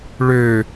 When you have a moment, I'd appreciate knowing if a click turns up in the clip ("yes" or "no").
no